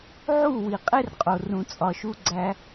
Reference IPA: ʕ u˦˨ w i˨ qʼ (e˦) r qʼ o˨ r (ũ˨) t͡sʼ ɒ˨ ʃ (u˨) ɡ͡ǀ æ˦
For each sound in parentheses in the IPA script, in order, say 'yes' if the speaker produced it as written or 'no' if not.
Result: yes, yes, no

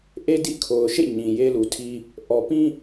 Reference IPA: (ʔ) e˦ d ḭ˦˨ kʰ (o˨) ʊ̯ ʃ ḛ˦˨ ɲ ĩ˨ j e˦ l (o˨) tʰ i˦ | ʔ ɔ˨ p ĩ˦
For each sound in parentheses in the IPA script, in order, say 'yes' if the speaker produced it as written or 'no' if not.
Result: yes, yes, no

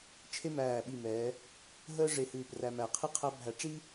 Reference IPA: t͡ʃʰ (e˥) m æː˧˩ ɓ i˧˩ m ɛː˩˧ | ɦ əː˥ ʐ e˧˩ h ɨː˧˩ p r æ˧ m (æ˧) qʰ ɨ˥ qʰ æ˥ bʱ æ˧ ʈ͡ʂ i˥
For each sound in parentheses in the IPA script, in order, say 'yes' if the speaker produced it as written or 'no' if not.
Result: yes, no

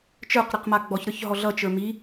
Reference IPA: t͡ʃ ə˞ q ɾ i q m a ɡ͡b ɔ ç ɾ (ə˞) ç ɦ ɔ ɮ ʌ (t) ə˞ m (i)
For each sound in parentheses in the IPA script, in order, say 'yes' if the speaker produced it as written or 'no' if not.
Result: yes, no, yes

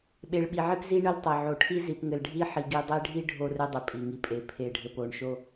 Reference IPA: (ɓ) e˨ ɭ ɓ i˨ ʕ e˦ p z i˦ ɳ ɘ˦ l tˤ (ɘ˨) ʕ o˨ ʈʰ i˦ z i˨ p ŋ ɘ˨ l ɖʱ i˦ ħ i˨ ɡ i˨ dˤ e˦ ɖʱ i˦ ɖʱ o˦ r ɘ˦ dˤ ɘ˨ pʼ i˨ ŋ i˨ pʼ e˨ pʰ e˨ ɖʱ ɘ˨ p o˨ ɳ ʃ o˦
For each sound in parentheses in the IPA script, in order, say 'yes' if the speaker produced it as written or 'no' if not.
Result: yes, yes

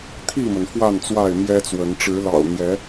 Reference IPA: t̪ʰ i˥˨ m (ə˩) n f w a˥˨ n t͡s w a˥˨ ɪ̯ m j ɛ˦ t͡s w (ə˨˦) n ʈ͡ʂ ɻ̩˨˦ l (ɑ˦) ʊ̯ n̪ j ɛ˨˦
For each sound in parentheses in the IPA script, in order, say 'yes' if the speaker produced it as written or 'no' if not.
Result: yes, yes, no

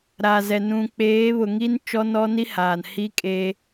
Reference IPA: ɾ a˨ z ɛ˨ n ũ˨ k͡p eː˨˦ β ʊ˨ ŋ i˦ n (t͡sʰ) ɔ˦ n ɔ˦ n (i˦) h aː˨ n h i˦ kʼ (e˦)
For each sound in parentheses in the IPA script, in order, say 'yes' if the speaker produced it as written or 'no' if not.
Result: no, yes, yes

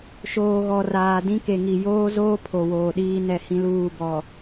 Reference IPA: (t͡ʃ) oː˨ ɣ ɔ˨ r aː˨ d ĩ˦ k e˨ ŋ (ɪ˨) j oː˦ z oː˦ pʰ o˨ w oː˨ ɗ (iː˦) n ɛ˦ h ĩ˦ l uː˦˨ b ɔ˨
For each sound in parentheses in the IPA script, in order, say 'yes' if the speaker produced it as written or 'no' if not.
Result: no, no, yes

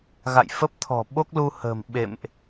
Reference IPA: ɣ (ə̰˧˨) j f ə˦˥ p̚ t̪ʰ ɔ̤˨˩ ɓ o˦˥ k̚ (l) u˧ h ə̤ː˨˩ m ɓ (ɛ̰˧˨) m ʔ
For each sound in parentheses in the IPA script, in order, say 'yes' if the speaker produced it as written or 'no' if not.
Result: no, yes, no

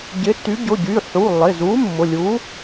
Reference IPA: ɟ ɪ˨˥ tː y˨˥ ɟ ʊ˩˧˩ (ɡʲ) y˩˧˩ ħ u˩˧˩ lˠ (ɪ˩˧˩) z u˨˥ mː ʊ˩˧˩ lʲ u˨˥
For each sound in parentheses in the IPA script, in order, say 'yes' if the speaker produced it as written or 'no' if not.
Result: no, yes

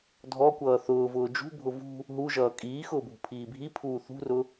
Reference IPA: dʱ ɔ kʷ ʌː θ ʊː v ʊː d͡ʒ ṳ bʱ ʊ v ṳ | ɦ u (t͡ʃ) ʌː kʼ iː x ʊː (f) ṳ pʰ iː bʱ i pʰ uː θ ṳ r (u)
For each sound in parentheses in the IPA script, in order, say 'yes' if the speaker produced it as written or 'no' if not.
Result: no, no, no

